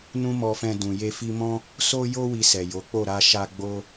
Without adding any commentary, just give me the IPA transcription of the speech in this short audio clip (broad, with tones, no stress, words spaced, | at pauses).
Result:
nũ˦mɔ˧fɛ̃˧ dũ˨je˧fi˧ mɔ̃˦ | so˦jo˦ wi˧sɛ˨jo˨˦k͡po˦˨ ɾa˧ʃa˧ ɡ͡bo˦